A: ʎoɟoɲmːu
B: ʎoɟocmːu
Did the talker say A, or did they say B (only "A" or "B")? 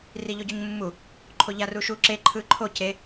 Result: A